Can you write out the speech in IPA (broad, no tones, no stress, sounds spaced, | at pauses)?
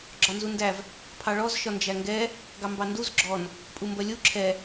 ɡ͡ǁ ɒ n z u n d æ v | pʰ ɑ ɭ ɔ z ʃ ɒ n d͡ʒ æ ŋ ɡ ɛ | ɡ ɑ m b ɑ n d u z ɡ͡ǁ ɔ n | pʼ u m b ɜ lʲ u ǁʰ ɛ